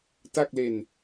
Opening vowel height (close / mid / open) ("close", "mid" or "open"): open